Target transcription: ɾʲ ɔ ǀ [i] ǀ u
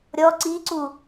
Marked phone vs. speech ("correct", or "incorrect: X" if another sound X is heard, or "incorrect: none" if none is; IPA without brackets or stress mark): correct